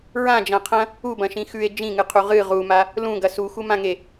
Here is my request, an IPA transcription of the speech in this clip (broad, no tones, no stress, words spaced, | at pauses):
ɹãd͡ʒã qʰɐ̃ | ubɐ̃ʃĩ xʉe̯ d͡ʒĩŋɨqʰu ʁɨ ʁuma | lũɡɐ suxumãŋe